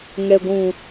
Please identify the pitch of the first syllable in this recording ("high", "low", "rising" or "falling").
low